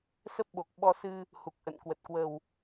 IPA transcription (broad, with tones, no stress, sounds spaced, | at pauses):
s ə˦˥ p̚ ɓ o˨˩ k̚ ɓ ɔ˧ s ɨ˧ | h u˨˩ k̚ ʔ ə̰˧˨ n k w ə˨˩ t̚ k w ə˨˩ w